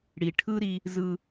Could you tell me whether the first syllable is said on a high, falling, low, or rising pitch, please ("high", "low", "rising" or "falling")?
low